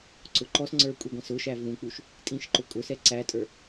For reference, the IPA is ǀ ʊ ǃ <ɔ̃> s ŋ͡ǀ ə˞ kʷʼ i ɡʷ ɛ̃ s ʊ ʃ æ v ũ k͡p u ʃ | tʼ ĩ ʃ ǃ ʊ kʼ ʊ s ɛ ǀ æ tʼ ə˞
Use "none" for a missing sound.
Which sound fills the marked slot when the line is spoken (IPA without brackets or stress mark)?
ɔ